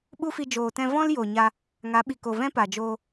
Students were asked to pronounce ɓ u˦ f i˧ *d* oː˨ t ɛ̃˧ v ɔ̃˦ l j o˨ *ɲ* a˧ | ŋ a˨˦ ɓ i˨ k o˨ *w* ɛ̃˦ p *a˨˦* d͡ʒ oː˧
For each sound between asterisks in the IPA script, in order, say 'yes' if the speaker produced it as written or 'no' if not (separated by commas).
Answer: no, yes, no, no